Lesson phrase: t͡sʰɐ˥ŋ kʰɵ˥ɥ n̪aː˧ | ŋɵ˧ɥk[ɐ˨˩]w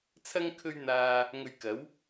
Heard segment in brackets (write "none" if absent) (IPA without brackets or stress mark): ɐ˨˥